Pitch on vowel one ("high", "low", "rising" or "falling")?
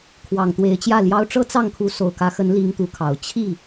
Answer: low